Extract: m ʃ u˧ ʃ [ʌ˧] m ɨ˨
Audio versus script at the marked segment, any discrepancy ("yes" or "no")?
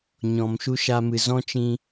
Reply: yes